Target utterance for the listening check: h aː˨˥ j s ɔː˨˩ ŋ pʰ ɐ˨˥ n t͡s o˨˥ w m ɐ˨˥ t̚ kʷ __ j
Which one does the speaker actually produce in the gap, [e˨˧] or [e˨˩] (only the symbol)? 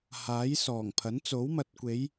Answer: e˨˧